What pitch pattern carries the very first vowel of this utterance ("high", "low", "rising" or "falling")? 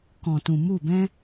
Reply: low